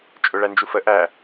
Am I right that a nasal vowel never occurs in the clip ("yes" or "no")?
yes